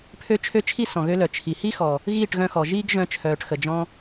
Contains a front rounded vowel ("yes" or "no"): yes